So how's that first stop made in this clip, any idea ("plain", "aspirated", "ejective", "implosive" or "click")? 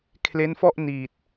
aspirated